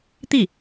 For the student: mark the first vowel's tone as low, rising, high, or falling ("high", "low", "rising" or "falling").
falling